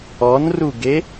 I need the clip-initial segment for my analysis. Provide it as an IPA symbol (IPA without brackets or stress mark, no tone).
ɔ